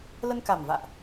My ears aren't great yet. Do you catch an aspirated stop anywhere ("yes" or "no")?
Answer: no